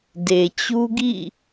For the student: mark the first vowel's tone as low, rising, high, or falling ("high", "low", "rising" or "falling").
low